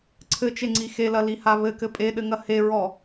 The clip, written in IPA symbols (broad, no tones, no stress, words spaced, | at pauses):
ǀʰɘt͡ʃeŋ͡ǀi xelɐliha βɘkɘ pʼeɗɘŋɐ heɹɔ